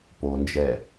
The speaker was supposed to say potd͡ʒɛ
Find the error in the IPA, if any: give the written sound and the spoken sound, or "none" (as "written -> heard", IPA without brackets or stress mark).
t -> n